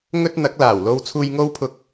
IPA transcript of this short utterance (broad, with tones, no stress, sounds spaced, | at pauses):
ŋ ɵ˥ t̚ n̪ ɐ˨˥ k̚ l aː˨˩ w l o˥ w t͡sʰ uː˥ j ŋ o˥ w pʰ ʊ˧ k̚